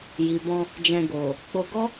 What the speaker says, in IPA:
j i˨ b ɔ̃˧ | d͡ʒ ɛ̃˧ ɡ o˨ | k͡p o˧ ɡ ɔ˦

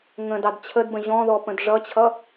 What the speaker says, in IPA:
ŋ ə̃ d ɑ d t͡ɕʰ ə d b ə̃ ʑ ɔ̃ ð ɔ p ə̃ d ʐ ʌ t͡ɕʰ ʌ

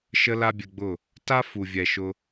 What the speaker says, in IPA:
ʃ ə˦ l a˦ bʲ ɘ˧ ɡ͡b ʊ˦˨ | t a˦ f u˨ vʲ ɛ˨ ʃ ʊ˧

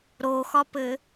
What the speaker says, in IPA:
ɾ o x ɒ p ɘ

